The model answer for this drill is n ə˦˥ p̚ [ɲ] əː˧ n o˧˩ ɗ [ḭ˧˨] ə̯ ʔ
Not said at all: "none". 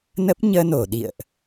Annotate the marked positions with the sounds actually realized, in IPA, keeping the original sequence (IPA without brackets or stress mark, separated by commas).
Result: ɲ, ḭ˧˨